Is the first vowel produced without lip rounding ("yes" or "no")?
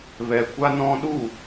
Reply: yes